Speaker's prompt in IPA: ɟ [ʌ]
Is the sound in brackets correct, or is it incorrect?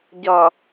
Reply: correct